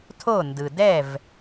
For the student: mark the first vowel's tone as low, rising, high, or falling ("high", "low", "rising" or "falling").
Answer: falling